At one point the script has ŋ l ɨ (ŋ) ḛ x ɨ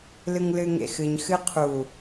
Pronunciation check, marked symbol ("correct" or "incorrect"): correct